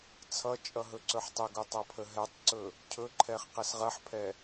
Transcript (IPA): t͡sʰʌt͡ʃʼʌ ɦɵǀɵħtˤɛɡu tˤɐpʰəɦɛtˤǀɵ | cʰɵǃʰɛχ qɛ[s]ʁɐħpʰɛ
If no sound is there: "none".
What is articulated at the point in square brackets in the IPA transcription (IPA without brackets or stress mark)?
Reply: s